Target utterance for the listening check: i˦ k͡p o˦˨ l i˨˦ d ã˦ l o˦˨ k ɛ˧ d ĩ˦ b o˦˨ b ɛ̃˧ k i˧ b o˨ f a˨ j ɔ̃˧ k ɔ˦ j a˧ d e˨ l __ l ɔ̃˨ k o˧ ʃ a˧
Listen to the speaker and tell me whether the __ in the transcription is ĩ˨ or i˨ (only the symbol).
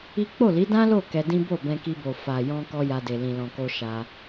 ĩ˨